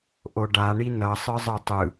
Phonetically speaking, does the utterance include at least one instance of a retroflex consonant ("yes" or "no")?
yes